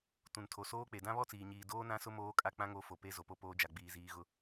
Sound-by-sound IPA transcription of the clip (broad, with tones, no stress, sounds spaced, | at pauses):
t ũ˨ n tʰ o˨ s oː˦ k͡p e˨ d ã˦ β ɔ˦ t͡s iː˨ ɲ iː˨ d oː˦ n ã˦ s ʊ˦ m oː˦ kʼ a˦ k͡p ã˦ ŋ o˨˦ f o˨ p e˦ z o˨ p o˦ p oː˦ d͡ʒ a˨ ɡ͡b iː˨ z iː˨ ɣ ʊ˨